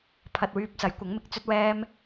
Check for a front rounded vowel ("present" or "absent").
present